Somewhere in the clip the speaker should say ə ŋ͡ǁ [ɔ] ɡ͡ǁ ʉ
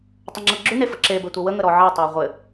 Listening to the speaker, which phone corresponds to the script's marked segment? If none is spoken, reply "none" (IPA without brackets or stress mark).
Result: ɤ